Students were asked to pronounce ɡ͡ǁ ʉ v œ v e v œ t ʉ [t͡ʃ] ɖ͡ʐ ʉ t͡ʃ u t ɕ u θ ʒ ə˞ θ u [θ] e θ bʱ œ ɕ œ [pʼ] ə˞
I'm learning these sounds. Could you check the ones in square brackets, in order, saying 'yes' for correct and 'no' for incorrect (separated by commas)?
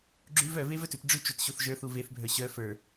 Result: no, no, no